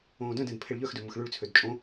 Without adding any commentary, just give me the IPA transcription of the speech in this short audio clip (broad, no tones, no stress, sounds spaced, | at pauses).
õː d œ̃ d ɛ̃ d pʰ e ɭ ʎ œ x d ø m ʊ x ɭ y ɭ t͡sʰ ø d t͡ʃʼ õ